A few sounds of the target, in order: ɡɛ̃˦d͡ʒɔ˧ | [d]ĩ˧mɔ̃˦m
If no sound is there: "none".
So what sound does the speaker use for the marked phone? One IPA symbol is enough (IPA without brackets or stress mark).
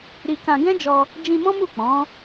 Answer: d͡ʒ